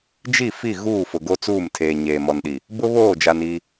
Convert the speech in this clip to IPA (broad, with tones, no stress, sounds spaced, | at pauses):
d͡ʒ i˦˨ f i˦˨ ɣ uː˦˨ f ʊ˨ ɡ o˦ t͡s uː˦˨ m tʰ eː˨ ɲ eː˨ m ɔ˨ n ɗ i˨ | b ʊ˦ β oː˦˨ d͡ʒ a˨ n i˦